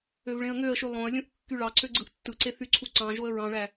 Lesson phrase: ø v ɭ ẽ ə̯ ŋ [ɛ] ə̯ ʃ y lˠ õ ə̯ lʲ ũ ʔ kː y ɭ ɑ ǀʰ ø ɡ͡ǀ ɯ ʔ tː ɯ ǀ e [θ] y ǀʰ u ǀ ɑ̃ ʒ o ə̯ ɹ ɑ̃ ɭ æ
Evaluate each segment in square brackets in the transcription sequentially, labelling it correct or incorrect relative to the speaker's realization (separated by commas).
incorrect, correct